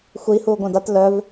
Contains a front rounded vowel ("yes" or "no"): yes